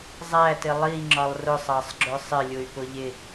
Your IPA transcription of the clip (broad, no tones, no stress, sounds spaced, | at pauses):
zˤ æ t ɪ lˠ i ŋ͡ǁ ɒ lˠ r ʊ sˤ ɑ sˤ ɡ͡ǁ ʊ sˤ ɪ lʲ ʊ y̯ p ʊ ʎ ɪ